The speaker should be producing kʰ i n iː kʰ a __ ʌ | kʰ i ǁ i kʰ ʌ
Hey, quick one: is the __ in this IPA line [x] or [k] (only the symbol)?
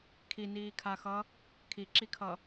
x